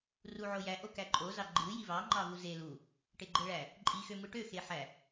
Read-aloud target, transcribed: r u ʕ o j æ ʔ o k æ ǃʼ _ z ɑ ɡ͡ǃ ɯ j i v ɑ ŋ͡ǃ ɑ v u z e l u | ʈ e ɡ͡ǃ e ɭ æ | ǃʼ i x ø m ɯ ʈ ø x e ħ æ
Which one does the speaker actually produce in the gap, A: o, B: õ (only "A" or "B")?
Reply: A